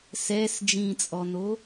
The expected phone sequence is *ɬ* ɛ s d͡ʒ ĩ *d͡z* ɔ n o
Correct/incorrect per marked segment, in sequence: incorrect, incorrect

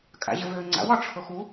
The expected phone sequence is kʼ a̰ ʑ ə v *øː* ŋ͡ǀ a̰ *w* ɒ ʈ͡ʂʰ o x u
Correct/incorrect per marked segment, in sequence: correct, correct

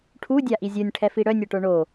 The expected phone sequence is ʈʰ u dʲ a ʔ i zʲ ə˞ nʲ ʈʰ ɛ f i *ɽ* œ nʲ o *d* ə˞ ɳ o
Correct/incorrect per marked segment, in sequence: correct, incorrect

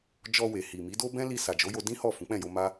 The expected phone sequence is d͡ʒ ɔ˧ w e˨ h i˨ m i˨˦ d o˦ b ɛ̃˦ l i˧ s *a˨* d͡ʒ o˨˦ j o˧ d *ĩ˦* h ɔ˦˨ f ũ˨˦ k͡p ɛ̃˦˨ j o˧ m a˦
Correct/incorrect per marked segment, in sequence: correct, correct

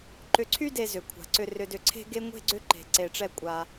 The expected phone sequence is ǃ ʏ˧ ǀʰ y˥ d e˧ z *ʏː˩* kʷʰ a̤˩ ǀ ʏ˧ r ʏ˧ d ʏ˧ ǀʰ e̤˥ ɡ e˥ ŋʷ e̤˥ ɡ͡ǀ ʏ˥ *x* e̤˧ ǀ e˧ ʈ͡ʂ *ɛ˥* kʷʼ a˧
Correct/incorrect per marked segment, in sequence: incorrect, incorrect, correct

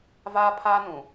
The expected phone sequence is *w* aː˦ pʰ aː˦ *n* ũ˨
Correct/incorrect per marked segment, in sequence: incorrect, correct

